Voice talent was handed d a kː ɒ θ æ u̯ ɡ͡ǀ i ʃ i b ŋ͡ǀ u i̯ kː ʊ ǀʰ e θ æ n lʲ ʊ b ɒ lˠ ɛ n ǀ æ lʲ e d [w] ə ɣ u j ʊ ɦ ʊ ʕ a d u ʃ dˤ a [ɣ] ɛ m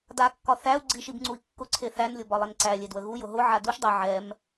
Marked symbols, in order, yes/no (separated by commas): yes, no